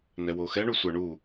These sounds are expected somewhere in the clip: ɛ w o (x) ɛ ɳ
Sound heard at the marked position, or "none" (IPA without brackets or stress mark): x